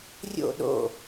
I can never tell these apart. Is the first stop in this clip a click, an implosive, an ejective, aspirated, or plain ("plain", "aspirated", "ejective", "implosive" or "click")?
implosive